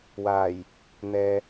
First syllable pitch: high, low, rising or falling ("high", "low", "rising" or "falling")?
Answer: low